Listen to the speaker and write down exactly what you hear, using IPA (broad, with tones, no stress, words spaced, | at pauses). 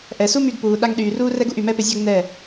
ʔɛ˨su˦ my˧ɡpuː˨ ɗa˧ŋɗyː˨ ruː˦rɛ˦ɡu˧ʔ y˨mɛ˦pɪ˧zʲa˦ɡ n̪ɛ˦˨